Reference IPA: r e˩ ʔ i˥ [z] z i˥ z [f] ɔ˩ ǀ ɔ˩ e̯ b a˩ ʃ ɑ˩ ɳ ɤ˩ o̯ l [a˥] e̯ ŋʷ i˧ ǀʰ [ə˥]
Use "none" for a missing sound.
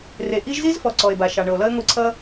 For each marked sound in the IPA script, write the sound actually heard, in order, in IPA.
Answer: ʒ, f, ʌ˥, ʌ˥

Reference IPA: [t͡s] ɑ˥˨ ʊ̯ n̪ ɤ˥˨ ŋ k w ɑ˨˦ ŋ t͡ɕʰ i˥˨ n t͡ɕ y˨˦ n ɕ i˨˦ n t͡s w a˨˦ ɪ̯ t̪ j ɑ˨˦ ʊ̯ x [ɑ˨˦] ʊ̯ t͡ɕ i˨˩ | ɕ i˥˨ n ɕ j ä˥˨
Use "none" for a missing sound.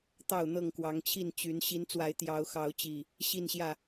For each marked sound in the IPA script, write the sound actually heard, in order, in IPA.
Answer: t̪, ɑ˨˦

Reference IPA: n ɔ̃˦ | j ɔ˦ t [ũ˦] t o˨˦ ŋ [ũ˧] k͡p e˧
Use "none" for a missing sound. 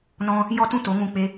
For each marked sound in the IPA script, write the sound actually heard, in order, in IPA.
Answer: ũ˦, ũ˧

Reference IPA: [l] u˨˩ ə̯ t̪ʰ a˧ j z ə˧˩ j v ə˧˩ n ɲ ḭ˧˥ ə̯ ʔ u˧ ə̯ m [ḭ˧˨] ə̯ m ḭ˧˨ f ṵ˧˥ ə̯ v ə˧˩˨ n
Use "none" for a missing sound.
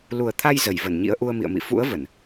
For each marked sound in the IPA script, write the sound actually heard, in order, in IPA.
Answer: l, ḭ˧˨

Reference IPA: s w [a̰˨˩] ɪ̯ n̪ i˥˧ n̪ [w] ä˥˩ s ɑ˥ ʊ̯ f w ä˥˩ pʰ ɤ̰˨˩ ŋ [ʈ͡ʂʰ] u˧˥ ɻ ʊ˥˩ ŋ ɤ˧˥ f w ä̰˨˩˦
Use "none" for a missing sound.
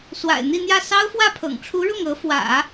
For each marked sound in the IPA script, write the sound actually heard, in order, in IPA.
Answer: a̰˨˩, j, ʈ͡ʂʰ

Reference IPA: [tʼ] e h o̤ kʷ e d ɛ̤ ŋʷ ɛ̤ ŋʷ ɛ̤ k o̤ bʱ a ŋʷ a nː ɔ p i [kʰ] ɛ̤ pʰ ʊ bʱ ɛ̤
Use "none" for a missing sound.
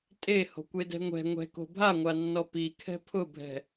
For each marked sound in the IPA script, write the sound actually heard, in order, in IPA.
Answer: tʼ, kʰ

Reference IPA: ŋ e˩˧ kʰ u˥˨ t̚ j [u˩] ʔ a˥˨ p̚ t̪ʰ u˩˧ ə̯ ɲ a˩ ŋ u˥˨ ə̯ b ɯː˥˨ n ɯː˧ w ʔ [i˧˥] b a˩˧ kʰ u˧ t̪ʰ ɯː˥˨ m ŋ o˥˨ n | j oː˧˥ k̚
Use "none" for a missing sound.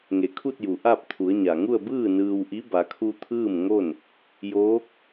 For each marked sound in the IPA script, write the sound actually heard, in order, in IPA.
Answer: u˩, i˧˥

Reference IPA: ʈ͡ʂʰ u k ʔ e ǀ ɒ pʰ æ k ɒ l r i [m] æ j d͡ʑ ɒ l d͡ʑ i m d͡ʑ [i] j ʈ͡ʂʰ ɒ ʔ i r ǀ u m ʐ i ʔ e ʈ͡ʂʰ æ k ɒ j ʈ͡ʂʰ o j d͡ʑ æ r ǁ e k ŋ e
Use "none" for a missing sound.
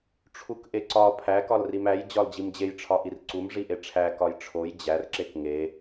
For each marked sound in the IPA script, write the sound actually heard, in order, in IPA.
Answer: m, e

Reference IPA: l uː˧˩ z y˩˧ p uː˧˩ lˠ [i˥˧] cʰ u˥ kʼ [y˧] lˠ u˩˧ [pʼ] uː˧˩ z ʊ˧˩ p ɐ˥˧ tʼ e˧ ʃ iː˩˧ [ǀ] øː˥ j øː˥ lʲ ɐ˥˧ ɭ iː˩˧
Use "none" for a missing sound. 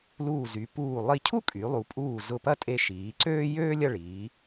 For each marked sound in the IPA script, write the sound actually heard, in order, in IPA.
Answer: i˥˧, y˩˧, pʼ, ǀ

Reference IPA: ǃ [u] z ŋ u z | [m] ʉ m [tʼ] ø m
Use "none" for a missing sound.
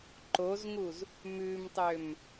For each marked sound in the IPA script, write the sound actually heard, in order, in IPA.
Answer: o, m, tˤ

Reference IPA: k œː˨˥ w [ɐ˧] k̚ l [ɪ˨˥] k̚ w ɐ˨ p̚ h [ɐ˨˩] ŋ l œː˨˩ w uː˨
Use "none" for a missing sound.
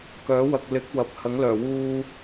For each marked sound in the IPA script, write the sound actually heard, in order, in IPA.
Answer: ɐ˨, ɪ˨˥, ɐ˨˥

